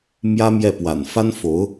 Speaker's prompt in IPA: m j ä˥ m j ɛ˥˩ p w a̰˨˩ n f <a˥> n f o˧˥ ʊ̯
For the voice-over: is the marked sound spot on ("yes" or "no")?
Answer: yes